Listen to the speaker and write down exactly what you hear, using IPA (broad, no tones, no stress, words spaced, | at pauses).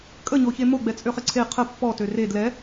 kʼəɲoçe moɡ͡bɛt͡sʼøχɪ ǀʰe qʰə pːɔtø re dlɛ